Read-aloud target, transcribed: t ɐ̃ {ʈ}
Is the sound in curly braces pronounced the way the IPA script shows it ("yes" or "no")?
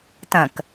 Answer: no